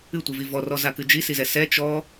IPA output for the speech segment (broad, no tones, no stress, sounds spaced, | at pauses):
ɨ tʷ ɨ v i v ɔ r ɔ z a k ɨ d͡ʒ i s i z ɛ s ɛ t͡ʃ ɔ